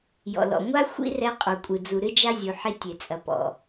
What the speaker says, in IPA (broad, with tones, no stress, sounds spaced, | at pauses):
j ɔ̰˨ l ɔ̰˨ ŋʷ a˦ xʷ ḭ˦ r ɛ˧ qʼ u˨ kʷʼ ɨ˨ d͡z u˨ ɾ ɨ˦ d͡ʒ a˦ zʲ u˨ ħ i˧ tʲ e˨ t͡sʼ ɐ˨ p ɔ̰˨